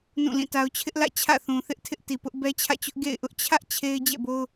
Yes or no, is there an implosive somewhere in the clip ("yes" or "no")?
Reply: no